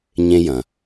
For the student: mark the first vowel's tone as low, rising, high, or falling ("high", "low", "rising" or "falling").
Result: high